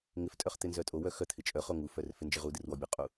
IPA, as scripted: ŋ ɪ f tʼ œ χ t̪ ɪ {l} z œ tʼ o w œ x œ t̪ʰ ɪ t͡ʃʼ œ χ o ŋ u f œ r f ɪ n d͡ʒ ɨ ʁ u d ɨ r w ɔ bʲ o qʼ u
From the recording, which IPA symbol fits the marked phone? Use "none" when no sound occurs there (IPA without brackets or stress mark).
n